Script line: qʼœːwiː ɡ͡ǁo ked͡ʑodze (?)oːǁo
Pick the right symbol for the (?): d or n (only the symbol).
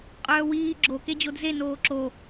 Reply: n